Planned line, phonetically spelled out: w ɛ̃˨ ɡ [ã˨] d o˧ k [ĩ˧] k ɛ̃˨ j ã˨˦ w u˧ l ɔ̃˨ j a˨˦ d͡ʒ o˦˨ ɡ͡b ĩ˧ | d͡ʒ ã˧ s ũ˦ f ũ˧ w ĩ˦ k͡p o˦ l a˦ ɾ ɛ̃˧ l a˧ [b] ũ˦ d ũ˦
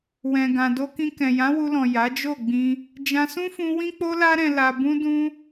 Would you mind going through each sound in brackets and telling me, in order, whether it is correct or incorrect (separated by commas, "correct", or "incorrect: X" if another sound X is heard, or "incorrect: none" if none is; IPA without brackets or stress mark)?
correct, correct, correct